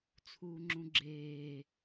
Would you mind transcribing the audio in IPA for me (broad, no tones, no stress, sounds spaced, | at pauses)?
t͡sʰ uː ŋ͡ǁ ũ ɡ͡ǁ eː